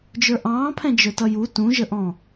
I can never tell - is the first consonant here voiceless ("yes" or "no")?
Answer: no